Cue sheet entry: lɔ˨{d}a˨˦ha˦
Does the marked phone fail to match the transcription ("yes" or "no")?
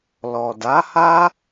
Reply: no